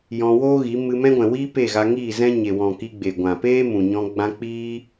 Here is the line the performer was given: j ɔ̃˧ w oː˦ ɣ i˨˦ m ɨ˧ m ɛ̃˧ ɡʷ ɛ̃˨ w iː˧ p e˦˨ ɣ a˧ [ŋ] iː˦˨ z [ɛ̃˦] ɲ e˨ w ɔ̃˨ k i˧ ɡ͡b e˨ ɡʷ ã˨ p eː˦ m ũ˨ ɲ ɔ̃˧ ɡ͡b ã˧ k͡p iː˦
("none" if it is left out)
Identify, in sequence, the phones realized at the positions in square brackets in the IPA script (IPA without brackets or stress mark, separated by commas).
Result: ŋ, ɛ̃˦